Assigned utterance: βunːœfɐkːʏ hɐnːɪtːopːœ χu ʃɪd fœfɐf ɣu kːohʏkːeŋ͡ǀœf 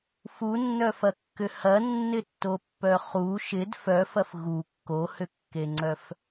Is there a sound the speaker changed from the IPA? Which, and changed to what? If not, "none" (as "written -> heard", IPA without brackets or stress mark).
β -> f